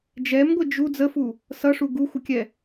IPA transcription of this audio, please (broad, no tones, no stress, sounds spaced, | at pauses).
d͡ʒ ɛ m ɡʷ ɪ d͡ʒ u d͡z ə f u | s ʌ ʂ u ɡ u xʷ ə kʲ ɛ